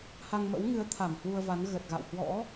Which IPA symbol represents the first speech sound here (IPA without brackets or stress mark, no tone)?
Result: h